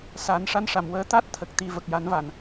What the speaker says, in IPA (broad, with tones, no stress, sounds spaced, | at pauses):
s a˨˩˦ n ʂ a˧˥ n ʂ a˨˩˨ m w əː˧˥ t̪ a˦˥ t̚ t̪ʰ ə˨˩ k̚ t̪ i˨˩ v ə˨˩ k̚ j a˨˩˦ n v a˨˩˨ n